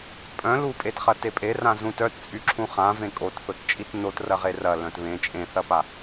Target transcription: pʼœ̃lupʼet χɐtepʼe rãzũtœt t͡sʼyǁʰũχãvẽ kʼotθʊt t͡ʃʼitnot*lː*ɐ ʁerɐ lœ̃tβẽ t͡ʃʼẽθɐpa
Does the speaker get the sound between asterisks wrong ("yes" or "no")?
yes